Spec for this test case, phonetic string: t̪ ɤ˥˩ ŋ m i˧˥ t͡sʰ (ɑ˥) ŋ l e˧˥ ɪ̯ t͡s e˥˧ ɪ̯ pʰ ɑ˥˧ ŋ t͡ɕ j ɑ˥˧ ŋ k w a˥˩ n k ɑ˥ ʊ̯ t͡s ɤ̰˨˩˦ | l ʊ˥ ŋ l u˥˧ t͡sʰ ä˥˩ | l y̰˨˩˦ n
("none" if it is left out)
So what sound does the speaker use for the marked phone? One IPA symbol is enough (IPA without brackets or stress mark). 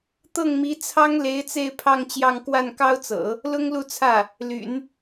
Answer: ɑ˥